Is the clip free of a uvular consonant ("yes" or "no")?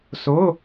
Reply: yes